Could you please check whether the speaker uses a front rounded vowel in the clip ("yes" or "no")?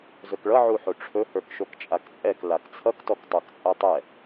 no